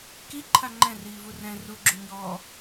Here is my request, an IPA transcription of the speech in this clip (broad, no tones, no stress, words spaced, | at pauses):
kiǃʰa ŋ͡ǃɛ̃riːvu rɛ̃ ruɡ͡ǁu ɲɔː